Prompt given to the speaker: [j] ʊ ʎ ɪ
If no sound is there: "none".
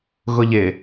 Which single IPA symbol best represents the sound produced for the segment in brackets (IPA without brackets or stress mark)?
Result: ɣ